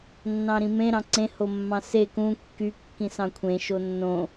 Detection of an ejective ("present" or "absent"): absent